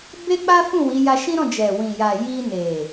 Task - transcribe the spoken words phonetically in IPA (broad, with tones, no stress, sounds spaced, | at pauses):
b e˦ k͡p a˦ f ũ˦˨ w i˨˦ j a˧ ʃ ĩ˦ ɾ ɔ̃˦˨ d͡ʒ ɛ˨ w ĩ˨ j a˨ j i˧ n e˨